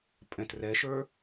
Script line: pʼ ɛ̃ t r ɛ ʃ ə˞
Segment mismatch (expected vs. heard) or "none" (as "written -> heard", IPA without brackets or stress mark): none